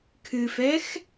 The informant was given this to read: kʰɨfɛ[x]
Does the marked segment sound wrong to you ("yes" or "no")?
no